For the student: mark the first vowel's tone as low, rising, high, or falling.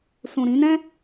low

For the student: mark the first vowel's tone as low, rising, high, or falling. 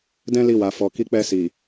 high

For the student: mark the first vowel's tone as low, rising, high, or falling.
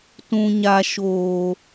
low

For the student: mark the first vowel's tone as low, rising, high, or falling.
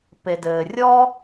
low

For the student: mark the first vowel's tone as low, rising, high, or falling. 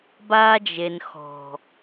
high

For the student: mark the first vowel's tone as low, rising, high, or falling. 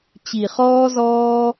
low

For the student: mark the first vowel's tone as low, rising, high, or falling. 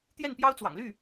falling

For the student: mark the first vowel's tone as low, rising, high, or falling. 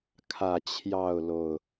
low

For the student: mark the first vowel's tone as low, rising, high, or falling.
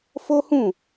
high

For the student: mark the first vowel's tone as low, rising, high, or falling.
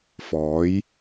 rising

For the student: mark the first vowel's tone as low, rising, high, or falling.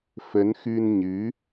rising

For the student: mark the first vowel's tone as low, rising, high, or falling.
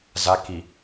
rising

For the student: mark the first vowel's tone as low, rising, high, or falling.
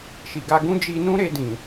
low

